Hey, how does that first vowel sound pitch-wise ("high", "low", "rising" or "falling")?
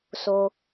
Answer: low